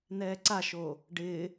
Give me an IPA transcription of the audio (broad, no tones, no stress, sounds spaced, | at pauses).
n ɛː ǀ a ʃ oː | ɖ ɪː